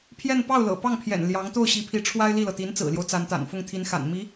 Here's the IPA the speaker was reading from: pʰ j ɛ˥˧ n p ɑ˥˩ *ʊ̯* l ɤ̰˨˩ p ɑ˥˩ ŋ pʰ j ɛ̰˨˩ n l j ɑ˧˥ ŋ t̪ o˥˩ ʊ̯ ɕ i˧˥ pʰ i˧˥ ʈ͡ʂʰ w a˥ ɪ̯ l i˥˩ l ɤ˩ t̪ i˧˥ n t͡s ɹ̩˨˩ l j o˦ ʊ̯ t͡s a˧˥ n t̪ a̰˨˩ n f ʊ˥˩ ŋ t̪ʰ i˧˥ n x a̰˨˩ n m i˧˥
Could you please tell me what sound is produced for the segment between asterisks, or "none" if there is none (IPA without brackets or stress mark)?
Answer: ʊ̯